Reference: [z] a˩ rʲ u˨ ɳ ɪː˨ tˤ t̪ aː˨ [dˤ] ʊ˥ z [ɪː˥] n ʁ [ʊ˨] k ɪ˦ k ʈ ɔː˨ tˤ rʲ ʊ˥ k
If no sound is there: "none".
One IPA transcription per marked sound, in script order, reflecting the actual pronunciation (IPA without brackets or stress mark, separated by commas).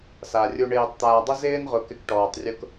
s, dˤ, ɪː˥, ʊ˨